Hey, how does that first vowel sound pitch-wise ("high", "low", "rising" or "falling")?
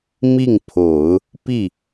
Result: falling